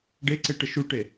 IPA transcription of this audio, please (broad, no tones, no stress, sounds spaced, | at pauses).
ɖ e ǀ e ʈ ə ʃ u ʈ e